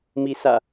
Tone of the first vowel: rising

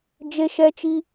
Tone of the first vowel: high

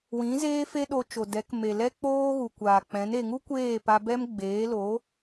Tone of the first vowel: rising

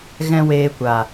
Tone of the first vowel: high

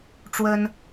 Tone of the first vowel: high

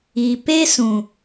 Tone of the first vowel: low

